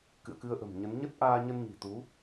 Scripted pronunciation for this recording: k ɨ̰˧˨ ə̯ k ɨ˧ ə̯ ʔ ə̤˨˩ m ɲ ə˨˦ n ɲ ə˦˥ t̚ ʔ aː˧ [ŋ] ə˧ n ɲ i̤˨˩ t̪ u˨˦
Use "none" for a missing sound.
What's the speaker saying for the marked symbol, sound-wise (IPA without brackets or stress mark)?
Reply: ɲ